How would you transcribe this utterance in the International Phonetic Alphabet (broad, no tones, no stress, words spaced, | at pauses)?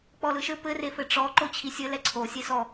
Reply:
k͡pɔlɯʃɘ pɘrefɘ ʈ͡ʂɔ ǃot͡ɕʰisʲɘ lɛǀʰo sʲesɔ